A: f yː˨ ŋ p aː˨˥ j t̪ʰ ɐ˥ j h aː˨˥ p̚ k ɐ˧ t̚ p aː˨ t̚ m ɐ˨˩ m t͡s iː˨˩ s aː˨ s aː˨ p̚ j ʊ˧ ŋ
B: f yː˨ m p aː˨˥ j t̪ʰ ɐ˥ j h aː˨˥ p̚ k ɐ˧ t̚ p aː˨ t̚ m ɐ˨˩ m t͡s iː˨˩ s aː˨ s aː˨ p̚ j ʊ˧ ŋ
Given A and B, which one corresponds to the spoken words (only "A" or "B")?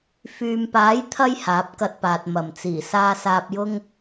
B